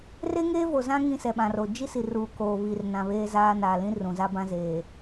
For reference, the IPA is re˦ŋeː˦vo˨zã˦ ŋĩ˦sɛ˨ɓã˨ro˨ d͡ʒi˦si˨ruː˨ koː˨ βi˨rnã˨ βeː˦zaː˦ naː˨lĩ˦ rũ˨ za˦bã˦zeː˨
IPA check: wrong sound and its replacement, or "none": none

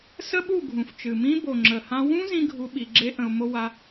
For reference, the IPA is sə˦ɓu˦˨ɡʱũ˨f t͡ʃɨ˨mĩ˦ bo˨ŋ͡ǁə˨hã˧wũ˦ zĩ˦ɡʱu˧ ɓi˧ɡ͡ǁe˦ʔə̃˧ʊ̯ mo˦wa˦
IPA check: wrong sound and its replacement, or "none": none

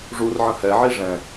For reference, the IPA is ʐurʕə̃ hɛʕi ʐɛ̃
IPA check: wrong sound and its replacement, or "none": none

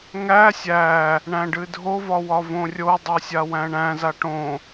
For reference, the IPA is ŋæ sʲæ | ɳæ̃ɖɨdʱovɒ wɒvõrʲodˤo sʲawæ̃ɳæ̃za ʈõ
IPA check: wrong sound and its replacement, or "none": none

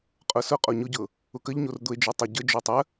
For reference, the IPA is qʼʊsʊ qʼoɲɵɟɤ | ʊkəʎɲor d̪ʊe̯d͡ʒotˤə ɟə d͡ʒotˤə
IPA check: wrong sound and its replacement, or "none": ɵ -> ʊ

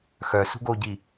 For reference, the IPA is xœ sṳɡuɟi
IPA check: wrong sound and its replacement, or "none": u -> o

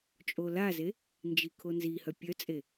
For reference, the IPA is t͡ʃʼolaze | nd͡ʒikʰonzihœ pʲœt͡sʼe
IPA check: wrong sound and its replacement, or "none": none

